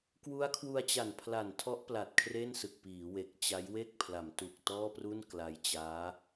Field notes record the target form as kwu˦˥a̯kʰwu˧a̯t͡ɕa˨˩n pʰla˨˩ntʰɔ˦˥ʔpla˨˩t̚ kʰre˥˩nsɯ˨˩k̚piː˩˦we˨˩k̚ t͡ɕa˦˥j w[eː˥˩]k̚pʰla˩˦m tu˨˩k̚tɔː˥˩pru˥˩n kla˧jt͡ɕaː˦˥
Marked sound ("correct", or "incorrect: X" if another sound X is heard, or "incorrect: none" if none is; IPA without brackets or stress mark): incorrect: e˥˩